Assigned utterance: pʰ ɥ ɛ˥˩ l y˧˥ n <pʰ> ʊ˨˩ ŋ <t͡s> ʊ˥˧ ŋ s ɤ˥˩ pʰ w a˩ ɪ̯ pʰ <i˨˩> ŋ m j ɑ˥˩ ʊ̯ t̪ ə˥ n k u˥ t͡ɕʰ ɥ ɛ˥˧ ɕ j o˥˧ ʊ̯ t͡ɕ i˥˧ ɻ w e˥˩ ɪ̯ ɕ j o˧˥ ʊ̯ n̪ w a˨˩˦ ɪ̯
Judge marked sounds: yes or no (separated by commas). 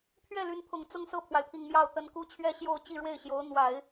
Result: yes, yes, yes